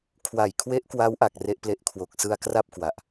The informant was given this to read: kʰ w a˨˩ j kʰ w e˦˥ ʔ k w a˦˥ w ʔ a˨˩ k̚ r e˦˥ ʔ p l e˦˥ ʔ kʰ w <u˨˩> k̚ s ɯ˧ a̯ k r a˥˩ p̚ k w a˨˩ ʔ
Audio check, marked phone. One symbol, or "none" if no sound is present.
o˨˩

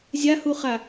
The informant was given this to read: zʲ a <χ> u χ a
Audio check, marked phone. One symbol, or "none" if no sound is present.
h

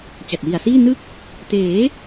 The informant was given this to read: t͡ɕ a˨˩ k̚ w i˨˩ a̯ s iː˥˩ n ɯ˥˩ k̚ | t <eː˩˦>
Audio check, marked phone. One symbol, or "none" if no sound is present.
eː˩˦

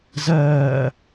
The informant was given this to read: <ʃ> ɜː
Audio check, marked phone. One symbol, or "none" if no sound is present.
z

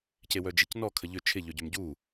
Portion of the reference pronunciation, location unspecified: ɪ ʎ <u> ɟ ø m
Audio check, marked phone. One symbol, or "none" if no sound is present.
ø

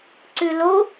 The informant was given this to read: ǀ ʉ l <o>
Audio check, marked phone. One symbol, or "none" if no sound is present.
o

